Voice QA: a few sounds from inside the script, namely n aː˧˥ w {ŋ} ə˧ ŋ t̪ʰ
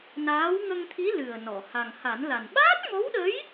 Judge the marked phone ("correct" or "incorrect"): correct